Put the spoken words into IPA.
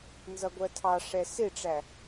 n z ʌ ɡʷ ɜ tʰ ɑ ʂ ɛ s ɪ ʈ͡ʂ æ

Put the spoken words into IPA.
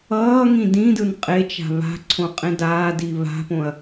ʌː ŋ ĩ d ĩ d ɯ n qʼ e t͡ʃ a̤ β a̤ ǀʰ õ qʼ ẽ d aː d i β a̤ p õ ɐ̯

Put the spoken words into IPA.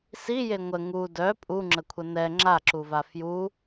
s i j e ŋʷ ə ŋ u d œ pʼ u ŋ͡ǁ ə kʷʰ ə n ɛ ŋ͡ǁ a ǁ u v a f j u

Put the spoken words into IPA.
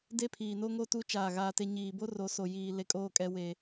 d e˦ pʰ iː˨ n o˦ ŋ o˦ t u˦ t͡ʃ aː˦˨ ɣ aː˦ t e˦ ɲ iː˨ b o˦ r o˨˦ s o˨ j iː˨ l e˨ kʼ oː˦˨ kʼ ɛ˨ w eː˨

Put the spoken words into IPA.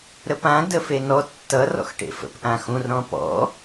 ɾ ə p ã d ə f e n ɔ tː ʌ r ɔ̰ x ʈ ḛ f ə̰ p ʔ ã x ũ r ɾ ɔ̃ p ɔ̰

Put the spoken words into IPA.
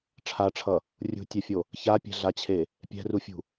ʈ͡ʂʰ a ʈ͡ʂʰ ʌ | rʲ ṳ tʲ ɛ fʲ o | ç a pʲ ɛ̤ ɮ a t͡ɕʰ e | pʲ ɛ̤ r u fʲ ṳ

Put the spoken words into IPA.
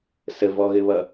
s ə v ɔ ɣ ɘ β ʌ

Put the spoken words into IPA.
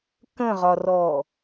k ə̃ ʁ ɒ r ɔ

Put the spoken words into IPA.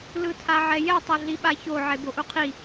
l ɯ tʰ a ʕ ɛ j ɛ tˤ o ɮ i ɓ a ç o ʕ e b o ʔ u qʰ i

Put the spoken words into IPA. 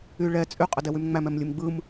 y ɭ ɛ t͡sʼ y qʼ ə d ɛ w y m ŋ͡m æ m ɛ m lʲ ɯ m ɡ͡b ɯ m

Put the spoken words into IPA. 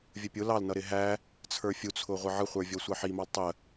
vʲ ə pʲ ʊ l ɑ l n ʌ ɾ ɪ ɦ æ | t͡sʰ ə˞ fʲ u t͡sʰ ʊ ʁʷ ʌ ʕ ə χʷ ə˞ vʲ ɔ sʷ ɑ ħ i m ɑ l tˤ ə

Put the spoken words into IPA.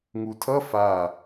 ŋ u tʰ ʌ f a

